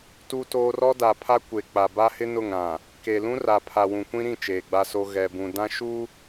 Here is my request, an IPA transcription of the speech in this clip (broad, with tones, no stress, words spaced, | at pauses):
tu˦toː˦r ɔ˦da˨pʰa˦ kʷe˨k͡pa˨ ba˦hɪ˦ nʊ˦˨ŋɾã˨ | ke˨lũ˦ra˨ pʰa˨wũ˨kʷĩ˦ɾĩ˦˨ t͡ʃeː˨ɡ͡ba˦so˦ ɣɛ˨bũ˨ dã˦ʃu˦